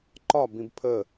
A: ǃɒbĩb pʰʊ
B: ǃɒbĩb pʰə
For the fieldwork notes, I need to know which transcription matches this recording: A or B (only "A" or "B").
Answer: B